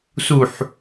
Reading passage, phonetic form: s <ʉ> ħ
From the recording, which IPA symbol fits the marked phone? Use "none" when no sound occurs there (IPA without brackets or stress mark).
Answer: u